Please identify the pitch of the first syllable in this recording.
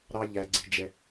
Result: high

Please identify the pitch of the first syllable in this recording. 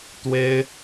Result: high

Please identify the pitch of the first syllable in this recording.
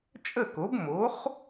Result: falling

